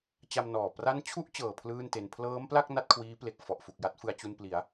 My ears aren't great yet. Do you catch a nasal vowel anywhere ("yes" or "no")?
no